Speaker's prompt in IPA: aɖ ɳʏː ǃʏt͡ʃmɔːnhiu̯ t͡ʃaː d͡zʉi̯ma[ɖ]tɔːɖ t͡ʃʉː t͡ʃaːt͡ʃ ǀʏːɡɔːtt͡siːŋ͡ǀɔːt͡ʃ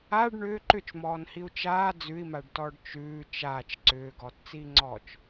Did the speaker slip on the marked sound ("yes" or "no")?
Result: no